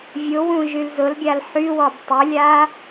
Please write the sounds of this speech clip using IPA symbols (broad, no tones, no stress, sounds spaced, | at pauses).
vʲ ʊ w ũ ʒ y l z ʊ l ɡʲ a l ħ y w ɔ b tˤ ʏ lʲ a